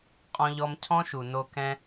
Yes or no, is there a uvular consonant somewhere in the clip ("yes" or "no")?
yes